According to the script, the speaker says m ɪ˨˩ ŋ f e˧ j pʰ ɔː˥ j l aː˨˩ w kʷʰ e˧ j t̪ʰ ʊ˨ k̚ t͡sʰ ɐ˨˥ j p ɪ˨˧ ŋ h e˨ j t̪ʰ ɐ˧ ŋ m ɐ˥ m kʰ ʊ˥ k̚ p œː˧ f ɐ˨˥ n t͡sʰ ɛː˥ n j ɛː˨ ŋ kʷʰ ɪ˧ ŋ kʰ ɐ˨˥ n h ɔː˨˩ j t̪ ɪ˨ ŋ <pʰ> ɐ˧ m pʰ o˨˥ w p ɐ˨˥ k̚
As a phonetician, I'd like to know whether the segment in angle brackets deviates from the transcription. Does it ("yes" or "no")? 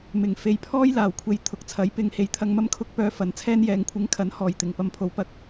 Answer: yes